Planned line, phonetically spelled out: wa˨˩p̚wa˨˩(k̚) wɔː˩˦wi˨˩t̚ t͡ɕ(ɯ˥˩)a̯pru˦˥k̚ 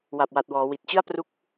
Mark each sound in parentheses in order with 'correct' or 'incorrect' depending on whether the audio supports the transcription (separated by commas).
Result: incorrect, correct